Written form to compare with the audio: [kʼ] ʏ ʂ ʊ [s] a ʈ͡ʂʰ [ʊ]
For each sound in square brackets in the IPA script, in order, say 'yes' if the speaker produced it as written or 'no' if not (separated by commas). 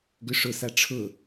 no, yes, yes